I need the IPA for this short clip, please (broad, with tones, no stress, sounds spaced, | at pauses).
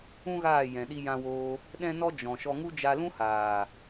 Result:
ũ˦ ɣ aː˦˨ j ɛ̃˨ ɗ i˧ j ã˧ w oː˧ | ɗ ɛ̃˦ n ɔ˦ d͡ʒ ɔ̃˨ ʃ ɔ˧ ŋ u˦ d͡ʒ a˧ l ũ˦ h aː˨